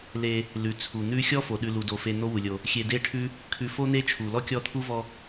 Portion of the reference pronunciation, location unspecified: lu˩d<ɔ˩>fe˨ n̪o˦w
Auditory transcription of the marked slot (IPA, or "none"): o˩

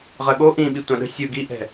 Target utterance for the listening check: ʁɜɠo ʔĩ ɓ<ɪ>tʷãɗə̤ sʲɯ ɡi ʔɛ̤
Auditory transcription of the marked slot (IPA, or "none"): i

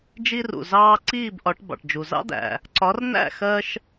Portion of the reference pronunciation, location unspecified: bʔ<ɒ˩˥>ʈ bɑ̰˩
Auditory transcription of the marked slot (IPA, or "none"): ɒ˩˥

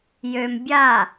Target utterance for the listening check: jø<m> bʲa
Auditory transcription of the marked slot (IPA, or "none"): m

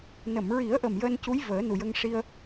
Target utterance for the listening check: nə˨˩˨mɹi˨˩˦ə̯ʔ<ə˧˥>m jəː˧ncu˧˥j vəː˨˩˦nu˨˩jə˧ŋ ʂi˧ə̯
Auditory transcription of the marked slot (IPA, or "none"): ə˨˩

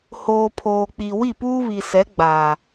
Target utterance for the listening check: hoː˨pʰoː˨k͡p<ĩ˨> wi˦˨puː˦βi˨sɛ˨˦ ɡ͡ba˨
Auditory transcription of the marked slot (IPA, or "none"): i˨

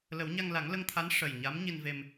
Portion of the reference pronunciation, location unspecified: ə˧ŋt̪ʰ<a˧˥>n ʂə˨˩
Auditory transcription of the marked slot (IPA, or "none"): a˧˥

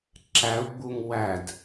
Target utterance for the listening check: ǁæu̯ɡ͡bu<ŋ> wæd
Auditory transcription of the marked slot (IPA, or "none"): ŋ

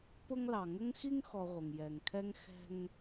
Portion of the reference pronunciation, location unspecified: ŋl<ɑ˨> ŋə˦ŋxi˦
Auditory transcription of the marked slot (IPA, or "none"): ɑ˨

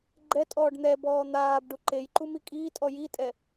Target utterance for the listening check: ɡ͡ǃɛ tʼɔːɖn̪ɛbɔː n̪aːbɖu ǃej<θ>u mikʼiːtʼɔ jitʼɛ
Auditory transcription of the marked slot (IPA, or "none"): ǃ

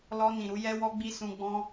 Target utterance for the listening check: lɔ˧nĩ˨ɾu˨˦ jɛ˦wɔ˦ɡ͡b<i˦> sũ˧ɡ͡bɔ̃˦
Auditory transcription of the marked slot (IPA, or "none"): i˦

